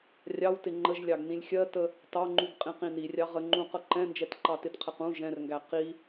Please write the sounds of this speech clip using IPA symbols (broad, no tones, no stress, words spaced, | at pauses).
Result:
rʲɑwtɪ ŋ͡ǃəʒlʲɑɡ nĩlʲxʲɜtə | tɑŋ͡ǃuɡ qʼĩqĩnirʲɑ ʁəŋ͡ǃũ qʌǃɛ̃nd͡ʒɛt ǃɑtɪtqʰɛq ũ ʒɛ̃rŋɡæ qi